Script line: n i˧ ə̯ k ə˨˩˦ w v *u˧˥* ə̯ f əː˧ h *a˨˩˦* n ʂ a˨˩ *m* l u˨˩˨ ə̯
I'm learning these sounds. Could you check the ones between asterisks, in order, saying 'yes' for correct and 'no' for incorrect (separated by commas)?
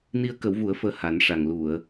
no, yes, no